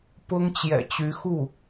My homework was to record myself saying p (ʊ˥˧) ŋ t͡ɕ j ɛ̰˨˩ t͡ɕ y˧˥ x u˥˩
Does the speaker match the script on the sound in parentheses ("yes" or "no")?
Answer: no